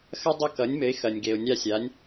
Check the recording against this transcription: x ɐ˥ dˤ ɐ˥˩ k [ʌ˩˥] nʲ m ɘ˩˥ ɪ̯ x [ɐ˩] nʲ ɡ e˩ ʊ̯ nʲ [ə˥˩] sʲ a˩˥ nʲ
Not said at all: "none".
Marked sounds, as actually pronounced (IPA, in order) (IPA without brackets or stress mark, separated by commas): ʌ˩˥, ɐ˩, a˥˩